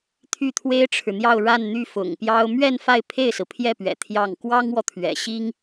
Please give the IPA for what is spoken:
t̪ʰ y˥˩ t̪ʰ w e˥ ɪ̯ ʈ͡ʂʰ ɻ̩˨ n̪ j ɑ˥˧ ʊ̯ ɻ a˥˧ n n̪ y˥˩ f ʊ̰˨˩ ŋ p j ɑ˥ ʊ̯ m ɥ ɛ˥˧ n f a˥˧ ɪ̯ pʰ e˥˩ ɪ̯ s ɹ̩˩ pʰ j ɛ˥˩ p ɥ ɛ̰˨˩ t̪ʰ j ɑ˥˩ ŋ k w ɑ˥ ŋ w ɔ˨ t̪ʰ ɥ ɛ̰˨˩ ɕ i˥ ŋ

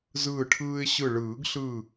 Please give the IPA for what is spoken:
z ɯː˧˩ ʈʰ ɯː˧ ɪ̯ ɕ ɯ˧˩ ɭ ɯː˨˩˦ ɡ ɬ ɯ˧˩

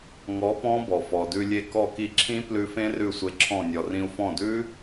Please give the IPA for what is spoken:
ŋ ɔ˨˥ p ɔ̃˦˥ b ɔ˩ f ɔ˩ d ʉ˧ lʲ e˧ k ɔ˧˩ k i˧˩ ǁʰ ĩ˦˥ p l ʉ˧ f ẽ˦˥ r ʉ˧˩ sʷ e˧ ǁʰ ɔ̃˧˩ nʲ ɔ˩ r ĩ˧ u̯ f ɔ̃˧˩ d ʉ˦˥

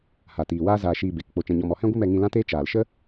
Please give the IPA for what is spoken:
h a˨ t iː˨ w aː˦ z aː˧ ʃ iː˧ b e˨ k k͡p o˧ t͡ʃ ɛ̃˧ ɲ ɔ˧ m ɔ˧ h ɛ̃˦ ɡʷ ɨ˦ m ɛ˧ ŋ ĩ˧ l ã˦ t eː˦ t͡ʃ aː˨ l ʃ ə˦

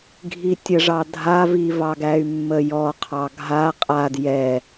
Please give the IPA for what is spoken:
ɡʱ i tʲ ə ʐ ɑ dʱ a v i v ɑ ɡ æ y̯ mː ə j ɔ qʰ ɑ ɡʱ a qʼ a d j ɛ

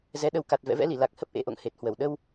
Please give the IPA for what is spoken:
z ɛ˨˦ ɗ ə˨˦ w k a˨˩ t̚ v ɛ̰˧˨ v ɛ̰˧˥ l i˧˩ l a˨˩ k̚ h ə˦˥ p̚ ʔ ḛ˧˥ ʔ o̰˧˨ ŋ h e˨˩ t̚ h w ə˧˩ w ɗ ə˧ w

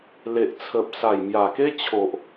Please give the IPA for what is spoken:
l e˨ ʔ t͡sʰ ə˨ p̚ s a˨˩ j m j a˨˩ k e˦ t͡ɕʰ o˨ ʔ

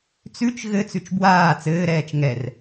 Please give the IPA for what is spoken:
t͡s ʉ t͡ʃ ɣ ɘ t͡s ʉ t͡ʃ b w aː t͡s ɘː ɾ ɛː t͡ʃ ŋ ɛ r

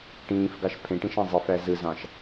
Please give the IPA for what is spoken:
ʈ ĩː f ɡ ɑ ʃ pʰ ẽ ʈ ĩ ʃ ɑ̃ zˤ i f æ z ɯ z ɑ̃ ʃ

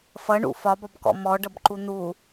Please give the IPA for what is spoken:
f ʌ ɳ ṵ f ɒ b ɒ b k ɔ̰ m ɔ ɖ ʌ b ǃ u n̪ u

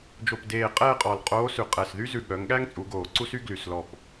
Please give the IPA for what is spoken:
d͡ʒ o˨˩ p d eː˨˩ qʼ ɛː˥˧ qʼ ɔ˨˩ l qʼ oː˧˥ s ʉ˨˩ qʼ ɛ˨˩ s ð y˥ z ʉ˨˩ ɠ œ˩˧ ŋ ɠ æ˥ ŋ t͡sʼ u˩˧ ɡ oː˨˩ ǀ u˥ s y˥ ɡ l y˨˩ s l ɔ˨˩ p

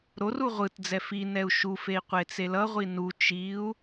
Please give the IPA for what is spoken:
ɾ o r u ʁʷ ɯ t d͡z ɛ f i n ɛ u̯ ʃ u f e i̯ qʷ e t͡s e l ʌ ʁʷ i n u t͡ʃ i u̯

